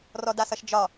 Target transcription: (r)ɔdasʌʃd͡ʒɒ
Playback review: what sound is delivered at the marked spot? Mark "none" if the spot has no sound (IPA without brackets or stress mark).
r